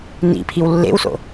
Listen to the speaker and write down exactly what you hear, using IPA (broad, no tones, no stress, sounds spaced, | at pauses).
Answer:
n ḭ pʰ i w lː ḛ w s o̰